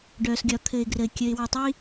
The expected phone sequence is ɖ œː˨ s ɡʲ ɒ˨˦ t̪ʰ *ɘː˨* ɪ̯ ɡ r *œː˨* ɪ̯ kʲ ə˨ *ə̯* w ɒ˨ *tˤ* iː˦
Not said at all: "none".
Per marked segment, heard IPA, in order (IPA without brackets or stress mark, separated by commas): ɘː˨, əː˨, ɪ̯, tˤ